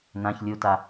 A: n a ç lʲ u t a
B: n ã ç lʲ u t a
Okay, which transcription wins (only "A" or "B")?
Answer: B